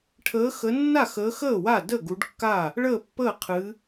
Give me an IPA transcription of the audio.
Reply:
ʈʰəː˨˦xə˨˦nːa˥˩xəː˨˦ xəː˥˩ wa˥˩də˥˩ ɡu˨˦ɖkːaː˥˩ | ɭəː˥˩pːəː˥˩qʰɨː˨˦

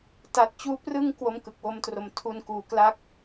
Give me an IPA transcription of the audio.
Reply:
ta˨˩t̚ t͡ɕuː˧ prɯ˧ŋ kwo˦˥mkɯ˨˩k̚wo˦˥mtro˨˩m tʰu˧nkuː˨˩kla˦˥k̚

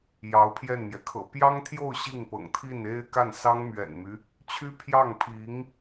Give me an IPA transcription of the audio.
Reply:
jɑ˧˥ʊ̯pʰjɛ˥˩nmjɛ˩ kʰɤ̰˨˩pjɑ˥ŋt̪ʰjo˥˧ʊ̯ ɕi˥˩ŋpɤ̰˨˩ŋ t̪ʰi˥˩ne˥ɪ̯ka˥˩n sɑ˥ŋmɥɛ̰˨˩nmy˦ | t͡ɕʰy˥pʰjɑ˥˩ŋpʰi˧˥ŋ

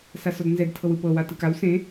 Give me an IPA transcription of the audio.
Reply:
sasɔdnzɛd tʰɤwɯpɤ watɯkaw sẽ

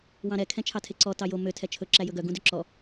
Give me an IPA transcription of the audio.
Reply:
wɑ̃ɾɛ kʰɛ̃t͡ʃʰɑtʰeǀɔ tɑjo mø tʰɛt͡ʃʰɵ ǁæjɵɡœ ɡũdøǁɔ

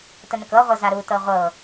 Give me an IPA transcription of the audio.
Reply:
tənəkɤʁʷɤ zaɾutɤ ʁʷɤ

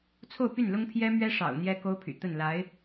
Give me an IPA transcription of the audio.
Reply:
t͡sʰo˥˧ʊ̯py˥˩nlʊ˥ŋ pʰjɛ˥mɥɛ˥ʂɑ̰˨˩ʊ̯ n̪jɛ˥ko˥ʊ̯pʰy̰˨˩ t̪ə˥˩n la˧˥ɪ̯

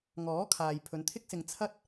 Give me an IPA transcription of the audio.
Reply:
ŋɔː˨˥kʰaː˨j pʰɵ˨˧nt̪ʰɪ˥k̚sɪ˧ŋ t͡sʰɐ˥t̚

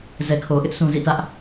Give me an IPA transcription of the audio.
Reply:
zɛ˨kʰo˨ʔɪ˦ʔ sʰũ˨zḭ˦˨tä˦ʔ

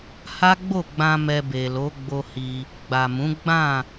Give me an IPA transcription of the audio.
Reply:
ha˦ɡ͡bo˦˨ɡ͡bã˧ mɛ˧be˨lo˨˦ɡ͡bo˧ hi˧ | ɡ͡ba˨mũ˨˦ ɡ͡bã˦˨

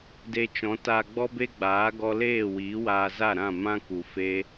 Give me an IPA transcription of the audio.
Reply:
de˦ t͡ʃɔ̃˨˦ta˧ɡ͡bɔ˦ be˦ɡ͡baː˨˦ ɡɔ˦ leː˦˨wiː˨˦ waː˧za˦˨ɾã˦˨ mã˦ ku˨fe˦

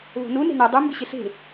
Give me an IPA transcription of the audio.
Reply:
βo̤nu ne̤nɛ dˤu mbɪɕɪɬe̤

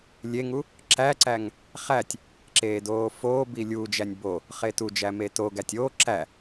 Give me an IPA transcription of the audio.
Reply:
lʲeŋu | ǁæǀæŋ | χætʲ | ǁeːdoːfoːbi lʲuːd͡ʒænʲ bo | χetud͡ʒæ metoɡætʲ o ǁæ

